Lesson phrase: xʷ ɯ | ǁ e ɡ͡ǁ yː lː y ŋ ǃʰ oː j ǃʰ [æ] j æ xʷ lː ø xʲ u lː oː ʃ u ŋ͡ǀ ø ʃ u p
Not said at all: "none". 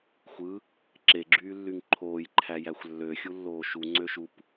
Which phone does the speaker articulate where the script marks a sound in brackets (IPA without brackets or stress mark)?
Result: æ